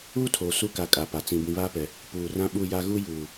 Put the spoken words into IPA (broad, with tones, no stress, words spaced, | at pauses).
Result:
uː˦ tʰoː˨ su˦ka˨ kʼa˨pa˨ t͡sĩ˨ bĩ˨βaː˦pɛ˨ | puː˨rã˦ɓu˦˨ja˦ ɣu˦ juː˨